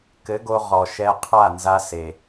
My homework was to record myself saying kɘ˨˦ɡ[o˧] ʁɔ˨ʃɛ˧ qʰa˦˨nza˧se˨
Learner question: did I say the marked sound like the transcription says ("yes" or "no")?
yes